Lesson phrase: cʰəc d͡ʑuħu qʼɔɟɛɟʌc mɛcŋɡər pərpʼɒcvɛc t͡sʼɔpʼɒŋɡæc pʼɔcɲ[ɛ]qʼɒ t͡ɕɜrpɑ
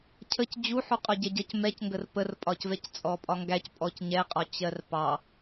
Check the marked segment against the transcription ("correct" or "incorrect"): correct